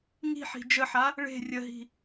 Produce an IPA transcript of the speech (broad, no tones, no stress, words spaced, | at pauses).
ŋi̤ħi̤ d͡ʒəħa | ɭe̤ rʲəɦi̤